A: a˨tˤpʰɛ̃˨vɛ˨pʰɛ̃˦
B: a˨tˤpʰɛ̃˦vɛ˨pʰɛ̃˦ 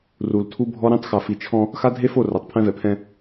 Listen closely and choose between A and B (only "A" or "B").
B